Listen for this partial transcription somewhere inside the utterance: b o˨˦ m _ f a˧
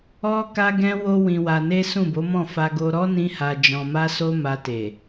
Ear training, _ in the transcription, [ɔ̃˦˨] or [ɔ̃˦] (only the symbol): ɔ̃˦˨